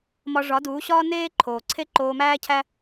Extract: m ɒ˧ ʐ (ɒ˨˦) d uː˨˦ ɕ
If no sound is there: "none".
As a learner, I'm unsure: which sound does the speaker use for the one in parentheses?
ɒ˨˦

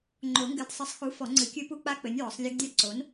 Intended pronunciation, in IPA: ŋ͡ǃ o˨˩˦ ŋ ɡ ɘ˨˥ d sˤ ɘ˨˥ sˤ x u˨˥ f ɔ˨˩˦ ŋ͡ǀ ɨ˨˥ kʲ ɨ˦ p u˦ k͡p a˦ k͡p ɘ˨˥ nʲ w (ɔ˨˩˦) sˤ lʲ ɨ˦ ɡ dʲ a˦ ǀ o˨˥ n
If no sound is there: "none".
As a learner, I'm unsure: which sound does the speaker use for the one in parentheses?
ɔ˨˩˦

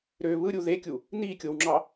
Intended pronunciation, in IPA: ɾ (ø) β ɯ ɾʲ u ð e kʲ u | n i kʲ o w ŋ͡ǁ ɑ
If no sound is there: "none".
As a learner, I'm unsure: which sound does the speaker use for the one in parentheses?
ø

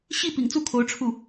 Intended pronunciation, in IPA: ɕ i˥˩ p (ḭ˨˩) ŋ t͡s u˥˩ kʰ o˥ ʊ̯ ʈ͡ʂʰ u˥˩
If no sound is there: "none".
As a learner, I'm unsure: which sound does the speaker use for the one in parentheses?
ḭ˨˩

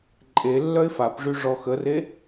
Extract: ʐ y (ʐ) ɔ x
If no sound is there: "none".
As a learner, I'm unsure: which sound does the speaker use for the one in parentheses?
ʐ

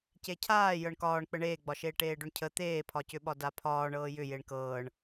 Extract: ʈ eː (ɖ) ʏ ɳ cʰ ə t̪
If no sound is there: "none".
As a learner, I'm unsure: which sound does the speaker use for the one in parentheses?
ɖ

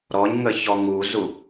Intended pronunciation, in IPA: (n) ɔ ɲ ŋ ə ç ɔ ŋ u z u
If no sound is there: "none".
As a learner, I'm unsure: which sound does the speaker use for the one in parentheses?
ɾ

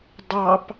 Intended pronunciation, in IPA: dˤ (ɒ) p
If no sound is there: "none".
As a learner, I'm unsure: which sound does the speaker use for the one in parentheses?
ɑ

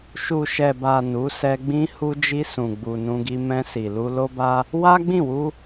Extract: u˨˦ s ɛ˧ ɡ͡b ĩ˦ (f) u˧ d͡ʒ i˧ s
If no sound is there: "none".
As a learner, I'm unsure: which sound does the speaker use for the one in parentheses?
h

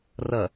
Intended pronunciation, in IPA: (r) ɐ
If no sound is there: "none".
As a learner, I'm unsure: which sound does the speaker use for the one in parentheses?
r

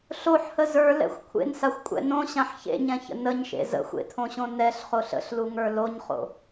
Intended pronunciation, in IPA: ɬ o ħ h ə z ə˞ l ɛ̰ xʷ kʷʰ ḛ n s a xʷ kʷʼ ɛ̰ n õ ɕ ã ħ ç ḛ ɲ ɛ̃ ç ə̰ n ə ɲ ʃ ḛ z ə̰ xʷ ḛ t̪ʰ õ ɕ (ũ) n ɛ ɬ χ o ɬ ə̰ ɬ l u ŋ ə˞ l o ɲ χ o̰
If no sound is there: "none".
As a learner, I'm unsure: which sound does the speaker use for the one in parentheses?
õ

